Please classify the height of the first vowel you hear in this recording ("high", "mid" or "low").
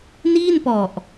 high